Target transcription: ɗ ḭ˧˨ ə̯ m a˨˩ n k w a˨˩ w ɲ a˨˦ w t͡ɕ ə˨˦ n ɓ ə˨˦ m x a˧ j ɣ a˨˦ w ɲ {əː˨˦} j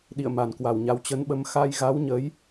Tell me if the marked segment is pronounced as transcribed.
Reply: yes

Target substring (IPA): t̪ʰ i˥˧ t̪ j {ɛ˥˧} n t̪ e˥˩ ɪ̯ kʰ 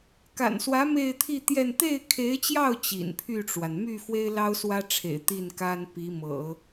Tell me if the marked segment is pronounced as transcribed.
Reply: yes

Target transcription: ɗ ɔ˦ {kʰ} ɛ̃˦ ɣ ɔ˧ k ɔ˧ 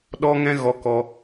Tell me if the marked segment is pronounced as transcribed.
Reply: no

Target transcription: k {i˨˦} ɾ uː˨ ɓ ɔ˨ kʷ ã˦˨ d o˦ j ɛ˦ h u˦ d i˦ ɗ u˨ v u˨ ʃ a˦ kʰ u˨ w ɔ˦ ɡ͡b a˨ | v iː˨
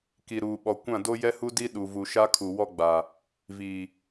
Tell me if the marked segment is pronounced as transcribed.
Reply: no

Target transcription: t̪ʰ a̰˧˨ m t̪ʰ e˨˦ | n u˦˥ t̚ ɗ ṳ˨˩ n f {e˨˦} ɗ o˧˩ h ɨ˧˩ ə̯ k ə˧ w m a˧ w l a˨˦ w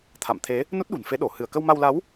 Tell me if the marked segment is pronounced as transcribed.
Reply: yes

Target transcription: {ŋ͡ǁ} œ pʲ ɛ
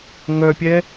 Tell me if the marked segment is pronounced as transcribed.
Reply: no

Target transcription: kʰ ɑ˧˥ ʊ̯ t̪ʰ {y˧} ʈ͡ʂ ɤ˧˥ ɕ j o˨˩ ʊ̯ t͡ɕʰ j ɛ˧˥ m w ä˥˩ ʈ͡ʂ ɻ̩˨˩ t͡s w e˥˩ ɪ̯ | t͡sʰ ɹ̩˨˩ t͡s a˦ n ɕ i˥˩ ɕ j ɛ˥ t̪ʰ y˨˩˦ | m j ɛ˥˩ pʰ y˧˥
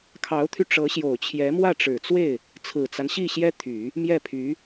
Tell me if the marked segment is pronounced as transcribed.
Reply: yes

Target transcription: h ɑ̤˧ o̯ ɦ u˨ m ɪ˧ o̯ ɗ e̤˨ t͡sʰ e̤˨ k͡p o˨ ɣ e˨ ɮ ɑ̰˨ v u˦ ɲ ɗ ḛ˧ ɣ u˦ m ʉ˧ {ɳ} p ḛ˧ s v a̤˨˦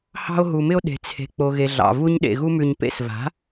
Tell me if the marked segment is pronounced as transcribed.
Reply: no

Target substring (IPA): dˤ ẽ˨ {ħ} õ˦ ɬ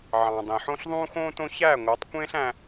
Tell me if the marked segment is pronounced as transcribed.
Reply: yes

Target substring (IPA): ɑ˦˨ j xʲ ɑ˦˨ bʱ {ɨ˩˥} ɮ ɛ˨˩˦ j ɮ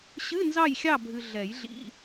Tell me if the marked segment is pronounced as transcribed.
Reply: no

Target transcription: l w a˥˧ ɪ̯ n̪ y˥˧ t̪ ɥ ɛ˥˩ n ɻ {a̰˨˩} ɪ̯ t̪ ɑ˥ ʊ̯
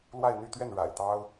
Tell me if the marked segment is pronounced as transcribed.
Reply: yes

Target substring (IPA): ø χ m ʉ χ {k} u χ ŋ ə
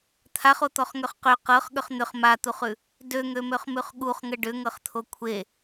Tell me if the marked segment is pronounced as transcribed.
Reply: no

